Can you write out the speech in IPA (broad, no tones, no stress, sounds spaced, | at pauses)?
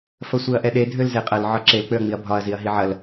f ɐ sʷ e ɐ̯ ʔ ɛ ɗ e dʱ ø l z e qʼ ɐ l ʕ ɒ ǁ e l k͡p ø ɐ̯ ŋ͡m i ɐ̯ bʱ ɒ ɐ̯ z i ɐ̯ ɦ i ʕ ɐ l